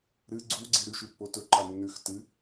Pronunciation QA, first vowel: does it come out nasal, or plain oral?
oral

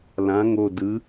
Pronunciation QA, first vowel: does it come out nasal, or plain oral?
nasal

